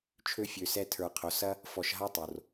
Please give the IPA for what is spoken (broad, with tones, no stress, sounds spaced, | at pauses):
t͡ʃʰ ø˦ fʲ ø˧ s ɛ˦ tʰ ə˞˧ qʰ o˨˦ s ɐ˦ | f ɔ˧ ʃ ɦ a˦ tˤ o˧ r